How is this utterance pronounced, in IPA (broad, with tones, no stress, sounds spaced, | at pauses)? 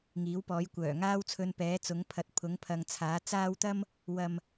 ŋ iː˨˥ w p ɔː˨˥ j kʷ œː˨˩ ŋ aː˥ w t͡sʰ ɵ˧ n p ɛː˨˥ t͡s ʊ˨˥ ŋ pʰ ɐ˨ t̚ pʰ ʊ˨˥ ŋ pʰ ɐ˨ ŋ t͡sʰ aː˨˥ t͡s aː˥ w t̪ ɐ˥ m | w ɐ˨ m